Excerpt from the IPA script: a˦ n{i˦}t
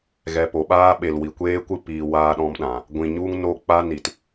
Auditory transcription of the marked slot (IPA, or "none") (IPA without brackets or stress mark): i˨